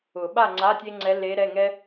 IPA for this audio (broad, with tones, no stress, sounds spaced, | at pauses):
ʊ˨˩˦ ɓ a˥˨ ŋ͡ǀ a˧˥˧ tʲ e˥ ŋ͡ǀ ɛ˧˥ l e˧˥ ɾ ɛ˧˥˧ ŋ ɛ˥